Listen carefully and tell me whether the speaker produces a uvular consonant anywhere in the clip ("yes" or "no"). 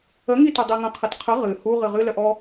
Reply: yes